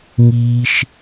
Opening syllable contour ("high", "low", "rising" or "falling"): low